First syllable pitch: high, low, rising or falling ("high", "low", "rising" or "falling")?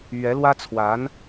rising